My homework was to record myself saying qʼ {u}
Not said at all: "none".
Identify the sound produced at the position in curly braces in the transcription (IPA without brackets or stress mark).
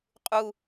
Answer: u